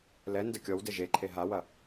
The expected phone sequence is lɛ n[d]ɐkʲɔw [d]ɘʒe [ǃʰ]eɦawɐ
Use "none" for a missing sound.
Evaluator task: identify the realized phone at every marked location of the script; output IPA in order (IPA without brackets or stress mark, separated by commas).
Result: d, d, ǃʰ